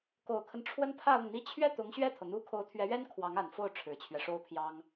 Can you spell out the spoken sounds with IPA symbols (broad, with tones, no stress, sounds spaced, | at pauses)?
k o˨˩ ʊ̯ kʰ ə˦ n ʈ͡ʂʰ w ə˥ n pʰ ä˥˧ ʊ˥˩ ŋ n̪ i˥ t͡ɕʰ ɥ ɛ˥˩ t̪ ʊ˧˥ ŋ ɕ ɥ ɛ˥˩ t̪ʰ ɤ˩ n̪ u˥ kʰ o˧˥ ʊ̯ t̪ʰ ɥ ɛ˧˥ ɥ ɛ˥ n kʰ w ɑ˧˥ ŋ a˨˩ n f o˥˩ ʊ̯ ʈ͡ʂʰ ɻ̩˨˩ t͡ɕʰ ɥ ɛ˦ ʂ o˥ ʊ̯ pʰ j ɑ˥ ŋ